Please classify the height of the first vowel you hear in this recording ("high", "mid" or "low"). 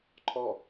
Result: mid